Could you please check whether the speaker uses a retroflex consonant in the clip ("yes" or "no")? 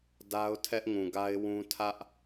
no